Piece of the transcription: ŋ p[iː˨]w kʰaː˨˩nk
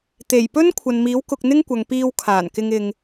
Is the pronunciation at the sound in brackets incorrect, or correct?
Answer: incorrect